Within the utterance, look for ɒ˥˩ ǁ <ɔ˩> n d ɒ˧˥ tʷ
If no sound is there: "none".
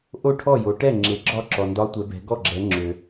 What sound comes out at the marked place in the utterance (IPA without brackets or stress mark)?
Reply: ɔ˩